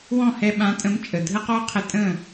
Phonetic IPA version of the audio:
wɔ̃˥˩hɛ˧ɓã˩˥ tʼə̃˩˥m t͡ʃʼə˩ dʱə˥qɔ˥qʰə˧ tʼə̃˥˩

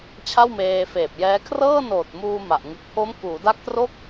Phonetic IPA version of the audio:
t͡ɕʰa˥˩wmeː˧feː˨˩p̚jɛː˦˥ kʰrɤː˥˩noː˨˩t̚muː˧ ma˨˩ʔ ŋɯ˨˩k̚pʰo˦˥m kuː˩˦da˦˥k̚tro˥˩k̚

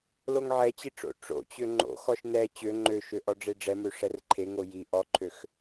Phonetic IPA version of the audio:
loŋʕɛt͡ɕi ʈ͡ʂo̰ ʈ͡ʂo̰t͡ɕø ŋ͡ǃo̰xɔʃ nɛ t͡ɕø ŋ͡ǃøʃø ʔɔɖ͡ʐeɖ͡ʐɛmø ʂɛrǃʰeŋo ji ʔɔǃʰøx

